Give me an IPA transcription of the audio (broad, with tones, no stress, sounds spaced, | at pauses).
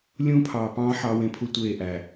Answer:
lʲ ũː˦ pʰ ɑː˨ p ɑ̃ː˦ ħ ɑ˦ w ẽ˦ pʰ u˦ tʷ eː˦˨ ʔ æ˨